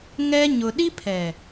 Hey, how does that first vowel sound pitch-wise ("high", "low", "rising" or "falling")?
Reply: high